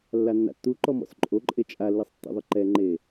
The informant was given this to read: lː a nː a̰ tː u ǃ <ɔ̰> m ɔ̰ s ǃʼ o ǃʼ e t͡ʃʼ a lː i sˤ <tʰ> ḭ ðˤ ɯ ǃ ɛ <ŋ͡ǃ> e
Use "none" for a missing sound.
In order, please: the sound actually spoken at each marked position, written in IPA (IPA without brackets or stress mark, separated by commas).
ɔ, tː, ŋ͡ǃ